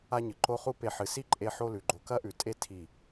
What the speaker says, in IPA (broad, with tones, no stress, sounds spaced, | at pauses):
a˦ ɲ ɨ˨ ǃ o˧ χ u˧ p e˨ ħ ɨ˨ s i˦ ǃʼ e˧ ħ o˦ l ʉ˨ ɡ͡ǃ o˧ k ɐ˦ ʔ ʉ˨ tʼ e˦ tʰ i˦˨